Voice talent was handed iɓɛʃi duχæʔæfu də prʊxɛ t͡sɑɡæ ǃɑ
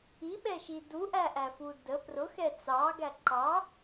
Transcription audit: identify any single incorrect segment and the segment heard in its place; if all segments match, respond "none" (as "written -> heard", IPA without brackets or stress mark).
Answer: χ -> ʔ